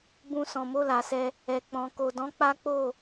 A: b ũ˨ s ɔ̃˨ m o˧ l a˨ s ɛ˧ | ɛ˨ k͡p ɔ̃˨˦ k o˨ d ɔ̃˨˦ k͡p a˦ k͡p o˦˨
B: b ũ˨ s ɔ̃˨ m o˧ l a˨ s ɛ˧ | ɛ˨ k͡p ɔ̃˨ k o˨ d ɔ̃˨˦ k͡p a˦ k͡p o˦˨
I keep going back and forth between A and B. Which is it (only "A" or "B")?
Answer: B